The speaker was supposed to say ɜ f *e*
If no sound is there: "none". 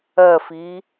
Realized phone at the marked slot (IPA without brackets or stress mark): i